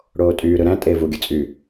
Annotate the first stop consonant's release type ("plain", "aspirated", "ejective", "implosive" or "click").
ejective